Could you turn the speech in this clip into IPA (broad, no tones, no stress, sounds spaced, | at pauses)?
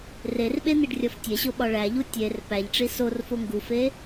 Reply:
r e r ɓ e n̪ i ɖ rʲ ɒ f tʲ e ɕ o ɓ ɒ ɭ æ ʎ u tʲ e r p æ ʎ ʈ͡ʂ i s o r f o ŋ ɡ u f e